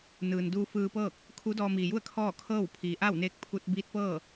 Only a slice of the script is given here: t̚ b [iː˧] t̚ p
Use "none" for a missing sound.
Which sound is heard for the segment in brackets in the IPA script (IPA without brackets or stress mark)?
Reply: iː˧˥